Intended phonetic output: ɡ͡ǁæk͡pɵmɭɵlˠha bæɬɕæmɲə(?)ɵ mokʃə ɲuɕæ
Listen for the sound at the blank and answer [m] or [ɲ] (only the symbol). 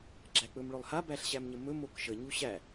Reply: m